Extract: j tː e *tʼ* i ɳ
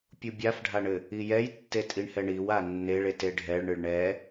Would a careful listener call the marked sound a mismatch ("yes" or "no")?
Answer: no